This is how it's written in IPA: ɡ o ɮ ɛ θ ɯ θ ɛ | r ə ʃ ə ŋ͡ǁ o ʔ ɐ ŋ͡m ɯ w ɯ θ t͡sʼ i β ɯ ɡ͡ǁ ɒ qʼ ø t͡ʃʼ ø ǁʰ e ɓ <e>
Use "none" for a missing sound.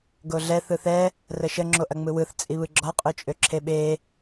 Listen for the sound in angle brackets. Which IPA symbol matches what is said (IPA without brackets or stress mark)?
e